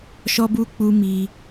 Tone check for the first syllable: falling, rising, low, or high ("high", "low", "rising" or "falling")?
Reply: high